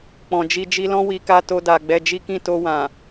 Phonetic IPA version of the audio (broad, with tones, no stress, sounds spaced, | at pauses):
k͡p ɔ̃˨ d͡ʒ i˧ d͡ʒ i˧ l ɔ̃˦ w i˧ k a˦ t o˦ d a˧ ɡ͡b ɛ˧ d͡ʒ i˦ k ĩ˦˨ t o˧ w ã˨